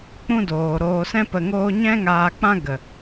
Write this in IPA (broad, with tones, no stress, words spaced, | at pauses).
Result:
k͡pũ˦doː˨ ɾoː˨sɛ̃˧pə˨ ŋoː˧ɲɛ̃˦ ŋaː˧k͡pã˦ɡə˨